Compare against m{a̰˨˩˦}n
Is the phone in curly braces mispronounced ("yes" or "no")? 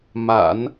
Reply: no